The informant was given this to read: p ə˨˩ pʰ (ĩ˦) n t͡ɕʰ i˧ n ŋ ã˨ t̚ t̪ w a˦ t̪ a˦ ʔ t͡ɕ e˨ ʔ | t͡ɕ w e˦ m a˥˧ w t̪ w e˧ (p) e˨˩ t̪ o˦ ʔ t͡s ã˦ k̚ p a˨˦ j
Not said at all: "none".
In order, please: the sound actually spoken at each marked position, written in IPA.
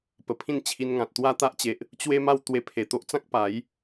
ĩ˥˧, pʰ

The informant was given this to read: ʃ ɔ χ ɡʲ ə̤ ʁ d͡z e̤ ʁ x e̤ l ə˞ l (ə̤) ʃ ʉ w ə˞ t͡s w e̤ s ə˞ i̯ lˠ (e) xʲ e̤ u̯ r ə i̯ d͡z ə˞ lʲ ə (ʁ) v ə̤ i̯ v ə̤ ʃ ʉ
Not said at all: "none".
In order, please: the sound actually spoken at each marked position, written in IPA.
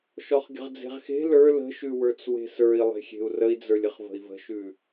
ə̤, e̤, χ

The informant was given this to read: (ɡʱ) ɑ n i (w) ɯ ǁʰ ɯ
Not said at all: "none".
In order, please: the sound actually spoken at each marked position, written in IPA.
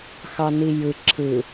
x, j

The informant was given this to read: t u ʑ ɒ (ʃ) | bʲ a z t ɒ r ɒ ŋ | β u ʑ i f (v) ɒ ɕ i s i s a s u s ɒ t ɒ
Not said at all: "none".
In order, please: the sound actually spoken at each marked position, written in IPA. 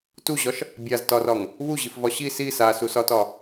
ʃ, v

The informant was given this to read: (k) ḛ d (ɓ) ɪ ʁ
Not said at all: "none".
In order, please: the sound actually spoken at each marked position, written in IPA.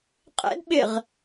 qʼ, ɓ

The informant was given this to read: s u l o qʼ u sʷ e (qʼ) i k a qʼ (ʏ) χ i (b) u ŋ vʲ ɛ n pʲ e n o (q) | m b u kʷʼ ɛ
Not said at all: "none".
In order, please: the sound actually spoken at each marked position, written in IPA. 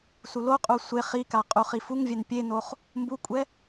χ, u, f, χ

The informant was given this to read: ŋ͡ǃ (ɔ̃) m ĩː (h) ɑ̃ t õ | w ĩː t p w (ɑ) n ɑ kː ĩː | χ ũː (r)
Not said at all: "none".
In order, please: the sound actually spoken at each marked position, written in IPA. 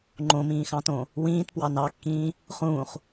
õ, x, ɑ, χ

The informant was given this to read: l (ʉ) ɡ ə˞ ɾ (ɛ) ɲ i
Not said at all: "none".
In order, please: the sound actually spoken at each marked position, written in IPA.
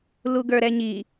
u, ɛ

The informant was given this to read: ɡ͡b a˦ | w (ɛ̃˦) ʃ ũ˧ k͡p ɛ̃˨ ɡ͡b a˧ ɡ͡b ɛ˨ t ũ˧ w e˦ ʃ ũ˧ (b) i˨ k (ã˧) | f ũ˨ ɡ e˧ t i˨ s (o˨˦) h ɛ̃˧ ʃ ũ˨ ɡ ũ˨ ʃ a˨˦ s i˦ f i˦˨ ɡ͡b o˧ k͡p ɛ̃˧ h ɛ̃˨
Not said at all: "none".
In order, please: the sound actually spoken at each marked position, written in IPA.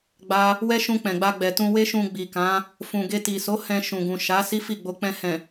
ɛ˦, ɡ͡b, ã˨˦, o˨˦

